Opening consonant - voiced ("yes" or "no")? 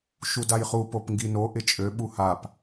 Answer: no